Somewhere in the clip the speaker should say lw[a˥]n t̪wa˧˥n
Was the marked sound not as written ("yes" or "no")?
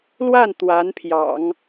yes